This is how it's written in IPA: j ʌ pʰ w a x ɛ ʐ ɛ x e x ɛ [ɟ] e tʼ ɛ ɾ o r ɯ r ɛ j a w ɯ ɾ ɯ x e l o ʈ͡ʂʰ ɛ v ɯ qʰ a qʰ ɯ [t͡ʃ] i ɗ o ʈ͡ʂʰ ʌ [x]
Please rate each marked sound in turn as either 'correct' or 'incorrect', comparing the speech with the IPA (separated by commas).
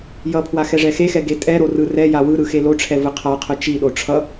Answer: incorrect, correct, incorrect